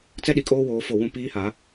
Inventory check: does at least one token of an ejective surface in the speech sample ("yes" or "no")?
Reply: yes